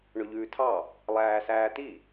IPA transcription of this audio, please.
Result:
ɳɵʎʉːtʰɑ | lˠæːsæːt̪i

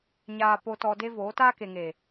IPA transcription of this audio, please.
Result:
ɲaː˨po˨ tɔ˧de˦ voː˨˦ taː˦ke˨ŋe˨

